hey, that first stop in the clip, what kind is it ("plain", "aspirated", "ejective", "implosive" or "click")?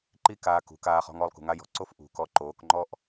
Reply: click